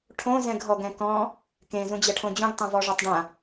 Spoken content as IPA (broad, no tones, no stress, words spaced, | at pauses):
ʈʰõ zɛ̃ɡɦɔɡɛ̃kɔ̃ | kẽ zũd͡ʑɛʈʰõd͡ʑũɡ tˤɛ̃vɔʐɔtˤɖã